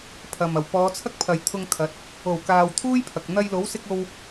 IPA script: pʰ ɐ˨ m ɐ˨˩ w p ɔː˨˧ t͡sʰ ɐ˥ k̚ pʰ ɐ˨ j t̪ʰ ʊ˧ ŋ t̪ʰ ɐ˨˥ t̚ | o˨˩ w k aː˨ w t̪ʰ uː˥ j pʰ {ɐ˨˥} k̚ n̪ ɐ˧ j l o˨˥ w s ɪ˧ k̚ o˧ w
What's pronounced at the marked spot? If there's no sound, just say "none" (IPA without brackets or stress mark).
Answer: ɐ˨